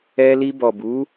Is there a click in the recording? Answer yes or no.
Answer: no